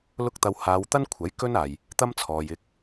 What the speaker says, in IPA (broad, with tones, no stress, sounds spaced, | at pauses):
l ʊ˥ k̚ t̪ ɐ˧ w h aː˨˧ w t̪ ɐ˥ n kʷʰ ɐ˨˥ j k ɵ˥ n aː˨ j | t̪ ɐ˥ m t͡sʰ ɔː˨ j ɪ˧ k̚